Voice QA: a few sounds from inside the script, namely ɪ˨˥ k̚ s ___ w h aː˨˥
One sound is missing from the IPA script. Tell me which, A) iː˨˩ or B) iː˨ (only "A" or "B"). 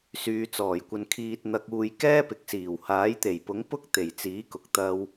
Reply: A